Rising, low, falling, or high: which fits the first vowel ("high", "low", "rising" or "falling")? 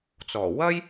low